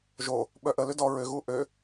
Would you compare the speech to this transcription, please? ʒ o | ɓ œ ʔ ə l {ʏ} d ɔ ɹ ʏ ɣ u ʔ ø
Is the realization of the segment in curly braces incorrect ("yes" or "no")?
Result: no